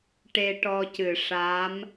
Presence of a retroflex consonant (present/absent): present